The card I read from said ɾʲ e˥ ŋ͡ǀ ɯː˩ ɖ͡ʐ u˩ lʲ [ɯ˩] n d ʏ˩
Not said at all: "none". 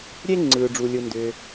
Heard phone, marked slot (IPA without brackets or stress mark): ɯ˩